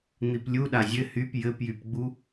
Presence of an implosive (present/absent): present